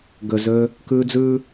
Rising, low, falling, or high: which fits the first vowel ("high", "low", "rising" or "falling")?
low